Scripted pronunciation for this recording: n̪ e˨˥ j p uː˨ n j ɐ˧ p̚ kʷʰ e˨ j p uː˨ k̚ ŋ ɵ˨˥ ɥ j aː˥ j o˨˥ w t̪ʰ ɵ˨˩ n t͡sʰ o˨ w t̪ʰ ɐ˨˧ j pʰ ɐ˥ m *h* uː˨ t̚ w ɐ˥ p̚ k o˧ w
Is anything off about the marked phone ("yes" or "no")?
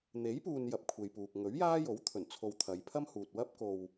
no